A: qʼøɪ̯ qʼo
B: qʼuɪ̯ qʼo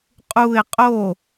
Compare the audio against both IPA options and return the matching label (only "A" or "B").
B